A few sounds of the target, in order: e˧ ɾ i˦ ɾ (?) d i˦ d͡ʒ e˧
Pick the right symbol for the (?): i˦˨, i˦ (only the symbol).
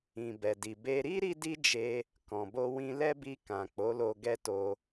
i˦